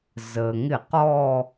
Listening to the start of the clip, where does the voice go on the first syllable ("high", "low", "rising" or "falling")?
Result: low